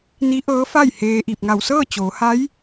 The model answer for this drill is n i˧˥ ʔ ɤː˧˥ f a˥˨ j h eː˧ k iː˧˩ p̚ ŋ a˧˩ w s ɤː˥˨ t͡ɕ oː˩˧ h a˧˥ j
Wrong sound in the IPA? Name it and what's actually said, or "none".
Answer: k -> ʔ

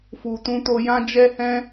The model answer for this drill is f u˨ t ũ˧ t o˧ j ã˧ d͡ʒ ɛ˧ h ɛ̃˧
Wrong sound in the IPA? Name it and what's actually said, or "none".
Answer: none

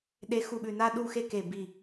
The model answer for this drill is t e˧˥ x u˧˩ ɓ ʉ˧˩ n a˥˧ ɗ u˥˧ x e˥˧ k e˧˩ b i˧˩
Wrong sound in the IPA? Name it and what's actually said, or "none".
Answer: t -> ɗ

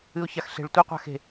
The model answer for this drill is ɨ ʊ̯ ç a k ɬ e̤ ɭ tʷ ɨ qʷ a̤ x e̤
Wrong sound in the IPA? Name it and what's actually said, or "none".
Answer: k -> x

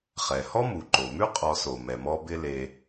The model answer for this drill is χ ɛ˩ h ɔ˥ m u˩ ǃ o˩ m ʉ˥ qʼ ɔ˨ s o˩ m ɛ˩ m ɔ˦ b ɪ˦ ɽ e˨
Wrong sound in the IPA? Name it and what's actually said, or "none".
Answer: ɽ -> l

